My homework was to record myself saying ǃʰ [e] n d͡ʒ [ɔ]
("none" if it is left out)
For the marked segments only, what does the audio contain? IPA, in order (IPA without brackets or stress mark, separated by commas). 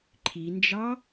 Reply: i, ɑ